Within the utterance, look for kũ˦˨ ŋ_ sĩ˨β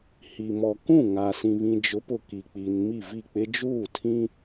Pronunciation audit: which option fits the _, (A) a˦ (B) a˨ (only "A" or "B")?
B